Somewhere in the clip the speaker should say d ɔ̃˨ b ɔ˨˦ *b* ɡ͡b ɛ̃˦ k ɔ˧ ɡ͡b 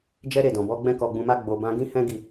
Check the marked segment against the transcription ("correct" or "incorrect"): incorrect